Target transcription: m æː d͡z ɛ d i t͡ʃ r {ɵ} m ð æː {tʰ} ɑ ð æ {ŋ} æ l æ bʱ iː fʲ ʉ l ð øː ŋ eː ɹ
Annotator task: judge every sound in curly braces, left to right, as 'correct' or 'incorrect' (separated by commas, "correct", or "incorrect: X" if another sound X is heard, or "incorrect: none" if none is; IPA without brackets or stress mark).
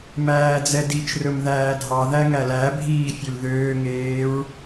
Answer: correct, incorrect: dʱ, correct